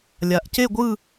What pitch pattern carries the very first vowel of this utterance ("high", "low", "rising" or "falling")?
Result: low